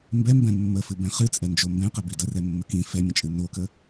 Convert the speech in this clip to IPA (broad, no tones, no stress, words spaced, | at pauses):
mbɛmbɛ̃ mːəfɨbɛ̃ χɨt͡sʼɛnd͡ʒo mbɛ̃qɛbi dərɛmːə kĩ fɛmʲə̃t͡ʃʼɨ nokə